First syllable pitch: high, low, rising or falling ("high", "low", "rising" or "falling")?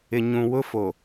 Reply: low